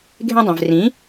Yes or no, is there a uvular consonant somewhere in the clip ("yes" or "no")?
no